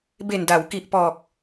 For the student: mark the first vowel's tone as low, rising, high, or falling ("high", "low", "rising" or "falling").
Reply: low